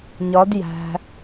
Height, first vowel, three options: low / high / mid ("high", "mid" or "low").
low